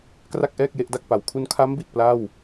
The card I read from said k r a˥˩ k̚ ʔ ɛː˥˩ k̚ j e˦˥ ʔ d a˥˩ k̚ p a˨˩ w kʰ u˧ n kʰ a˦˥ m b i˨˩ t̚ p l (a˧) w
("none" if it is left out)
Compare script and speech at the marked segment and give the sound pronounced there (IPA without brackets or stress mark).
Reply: a˥˩